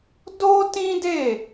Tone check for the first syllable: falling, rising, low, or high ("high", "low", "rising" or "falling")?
high